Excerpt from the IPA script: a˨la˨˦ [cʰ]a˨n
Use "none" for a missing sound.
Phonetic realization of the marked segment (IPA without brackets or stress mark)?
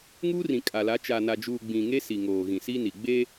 t͡ʃ